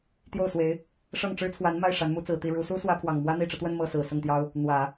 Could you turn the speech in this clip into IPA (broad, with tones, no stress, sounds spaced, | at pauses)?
t̪ j o˥˩ ʊ̯ s w e˧˥ ɪ̯ | ʂ ɤ˥˩ ŋ ʈ͡ʂ ɻ̩˥ t͡sʰ w a˧˥ n m a˥˩ ɪ̯ ʂ a˧˥ n m u˧˥ t͡s ɹ̩˨˩ t̪ i˥˩ ɻ u˧˥ s u˥ s w ä˥ pʰ w ɑ˨˩ ŋ m w ä˥ n̪ i˨˩ ʈ͡ʂ ɤ˦ t̪ w ə˥˧ n m ɤ˥˩ s ɹ̩˨˩ s ʊ˥˩ ŋ t̪ j ɑ˥ ʊ̯ | n̪ w ä˨˩˦